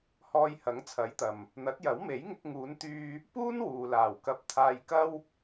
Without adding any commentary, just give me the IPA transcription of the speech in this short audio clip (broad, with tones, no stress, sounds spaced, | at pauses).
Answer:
h ɔː˧ j h ɐ˨˥ ŋ t͡sʰ ɐ˨˥ j t̪ ɐ˨ m | n̪ ɐ˨˥ t̚ j ɐ˨˥ w m e˨˥ j ŋ ɪ˧ k̚ ŋ uː˨˧ n t̪ yː˧ | p uː˥ n w uː˨ l aː˨˩ w k ɐ˧ p̚ t̪ʰ aː˧ j k ɐ˥ w